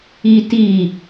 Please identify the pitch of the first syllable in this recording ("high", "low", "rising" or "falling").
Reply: high